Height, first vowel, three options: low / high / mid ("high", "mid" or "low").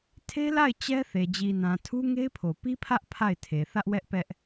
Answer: mid